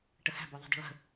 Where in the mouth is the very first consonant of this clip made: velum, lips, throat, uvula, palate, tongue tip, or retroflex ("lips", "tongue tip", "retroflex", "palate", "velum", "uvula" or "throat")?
retroflex